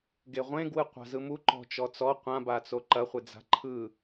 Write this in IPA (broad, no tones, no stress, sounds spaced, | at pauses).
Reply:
ɡ e ʁʷ ẽ ɡ w ɯ qʷ a̤ z ɯ m u ǃ ɔ̤ t͡ʃ ɔ t͡s ɔ qʷ ã b a t͡s o ǃ ɐ χʷ e d͡z a̤ ǃʰ ɯ